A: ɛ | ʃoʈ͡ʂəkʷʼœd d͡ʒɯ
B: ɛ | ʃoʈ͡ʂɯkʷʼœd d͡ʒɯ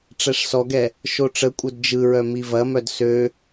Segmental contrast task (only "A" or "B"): A